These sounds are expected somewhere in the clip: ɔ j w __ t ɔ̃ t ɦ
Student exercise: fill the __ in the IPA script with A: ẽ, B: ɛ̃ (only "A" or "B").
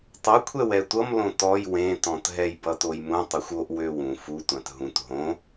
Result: A